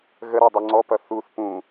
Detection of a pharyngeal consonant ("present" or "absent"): absent